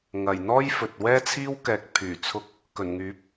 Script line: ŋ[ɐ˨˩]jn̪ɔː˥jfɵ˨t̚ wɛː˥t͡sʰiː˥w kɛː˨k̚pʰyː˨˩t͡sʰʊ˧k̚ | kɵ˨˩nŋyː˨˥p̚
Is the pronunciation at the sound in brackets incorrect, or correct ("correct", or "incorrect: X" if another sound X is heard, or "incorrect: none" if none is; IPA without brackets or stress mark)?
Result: correct